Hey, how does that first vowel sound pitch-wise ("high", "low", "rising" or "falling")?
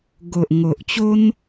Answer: low